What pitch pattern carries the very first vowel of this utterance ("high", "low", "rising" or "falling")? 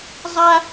high